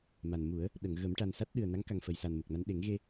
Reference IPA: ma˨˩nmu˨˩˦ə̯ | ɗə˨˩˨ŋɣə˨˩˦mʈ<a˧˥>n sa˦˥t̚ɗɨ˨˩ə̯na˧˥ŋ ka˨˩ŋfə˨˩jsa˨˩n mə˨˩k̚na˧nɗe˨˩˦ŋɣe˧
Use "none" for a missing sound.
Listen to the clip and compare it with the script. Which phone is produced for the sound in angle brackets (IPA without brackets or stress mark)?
a˨˩